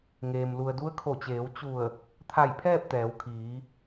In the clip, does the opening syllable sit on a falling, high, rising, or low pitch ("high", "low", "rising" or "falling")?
low